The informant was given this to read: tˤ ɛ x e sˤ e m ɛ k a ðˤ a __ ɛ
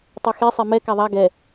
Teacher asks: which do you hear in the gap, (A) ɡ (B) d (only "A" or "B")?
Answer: A